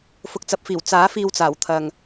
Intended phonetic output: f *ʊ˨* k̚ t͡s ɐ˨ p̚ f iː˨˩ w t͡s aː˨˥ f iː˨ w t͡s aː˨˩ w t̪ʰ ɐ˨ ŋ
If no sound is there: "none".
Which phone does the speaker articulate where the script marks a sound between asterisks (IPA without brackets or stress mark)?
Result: ʊ˨